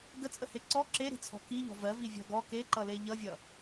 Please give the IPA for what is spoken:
ɡ ə t͡sʼ ə h e ǀ ɔ ǁ e ɾ i̤ t͡sʰ ɔ̤ k i ʎ ɔ̤ v ɜ v i vʲ ɔ̤ ɡ ɔ k e ǃ ʌ l e ʎ ʌ vʲ ʌ

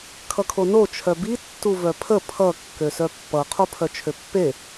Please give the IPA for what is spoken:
kʰ ʌ kʰ o n o t͡ʃʰ œ b i tː u v œ pʰ ə pʰ ʌ kː ø s œ pː ʌ qʰ o pʰ œ t͡ʃʰ ø pː e

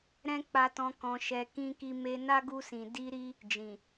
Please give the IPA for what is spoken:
ɾ ɛ̃˦ k͡p a˧ t ɔ̃˧ k ɔ̃˧ ʃ ɛ˧ k ĩ˧ k i˧ m e˧ n a˦ ɡ u˧ s ĩ˨ d i˧ ɾ i˦ | d͡ʒ ĩ˨

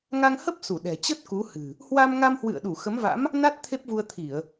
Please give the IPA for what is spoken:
ŋ a˧ ŋ h ə˦˥ p̚ s u˧˩ ɗ ɛ̤˨˩ t͡ɕ ə˦˥ t̚ k u˨˦ h ɨ̤˨˩ | h w a˧ m ŋ a˧ m h w ɨ̰˧˨ ə̯ ɗ u˧˩ x ə˨˦ m v a̰˧˥ m | n a˦˥ t̚ t̪ʰ e˦˥ p̚ v u˧ ə̯ t̪ʰ i˧˩˨ ə̯

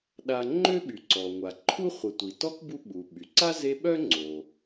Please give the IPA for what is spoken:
ɗ a˨ ŋ͡ǃ ø˥ ɓ y˩ ǀ ɔ˩ ŋʷ a˩ ǃʰ u˥ χʷ ə˨ tʷ i˩ t ɔ˥ k b u˦ ɓ u˩ ɓ y˩ ǀ a˥ z e˦ ɓ œ˥ ŋ͡ǀ o˨

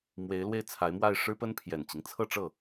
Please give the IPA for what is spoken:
m w e˧˥ ɪ̯ l w e˥˩ ɪ̯ t͡sʰ a˧˥ ɪ̯ m w a˥˩ ɪ̯ ʂ ɻ̩˥ p ə˥ n pʰ j ɛ˨˩ n t͡ɕ i˦ ŋ t͡sʰ ɤ˥˧ ʈ͡ʂ ɤ˥˩

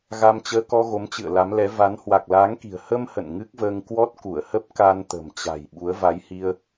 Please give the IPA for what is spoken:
ɣ a˧ m t͡ɕ əː˧ k ɔ˧ ɣ o˨˦ m t͡ɕ ɨ̰˧˨ ə̯ l a˨˦ m l ɛ˨˦ v a˨˦ n h w a˨˩ k̚ l aː˨˦ ŋ k i̤˨˩ ə̯ h ə˧ m h ə̰˧˨ n ŋ ɨ˦˥ k̚ v əː˧ ŋ k w ɔ˦˥ t̚ k u˧˩ ə̯ h ə˦˥ p̚ k a˧ n t̪ ə̤˨˩ m t͡ɕ a̤˨˩ j ɓ u˨˦ ə̯ v a˨˦ j h i˧ ə̯

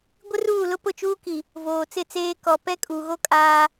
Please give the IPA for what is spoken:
ɡʷ ɪ˦ r uː˦˨ l ʊ˦ p ʊ˦˨ t͡ʃ uː˦ k i˨ | v oː˨ t͡s ɪ˦˨ t͡s eː˦ k ɔ˨ p ɛ˦ kʼ uː˨ ɣ o˦ kʼ aː˦

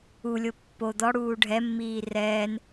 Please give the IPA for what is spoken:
u lʲ o pː o d̪ ɔ ɽ uː ɖʱ ɛ mː iː r ɛː n

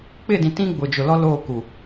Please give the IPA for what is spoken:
k͡p ɪ˦˨ d ĩ˨ t ĩ˦ ɡ͡b ʊ˨ d͡ʒ ʊ˨ l ɔ˦ l oː˦˨ k u˨

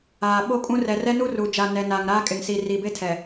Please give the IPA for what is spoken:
aː˨ ɓ o˦ kʼ ũ˦ r ɛ˨ r ɛ˦ n u˦ r u˨ d͡ʒ a˨ n ɛ˨ n aː˨ ŋ ɾ aː˦ kʼ ɪ˨ ŋ s iː˨ r iː˨ b e˦ tʰ ɛ˨

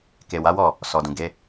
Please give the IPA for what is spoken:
k e˨ w a˨˦ w ɔ˦˨ | s ɔ˨ d ũ˨ ɡ e˨˦

